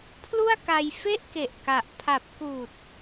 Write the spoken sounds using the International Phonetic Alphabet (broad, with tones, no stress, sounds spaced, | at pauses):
pʰ l u˥˩ a̯ k a˧ j f e˥˩ ʔ k e˨˩ ʔ k a˨˩ ʔ pʰ a˨˩ p̚ k uː˨˩ t̚